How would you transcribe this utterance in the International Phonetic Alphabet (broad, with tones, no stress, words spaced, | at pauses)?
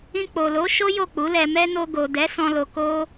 ĩ˧k͡po˨lo˨˦ʃo˦ jo˦˨k͡pu˨˦lɛ˧mɛ˦ no˧ɡo˨dɛ˨˦ sɔ̃˧lo˧ ko˦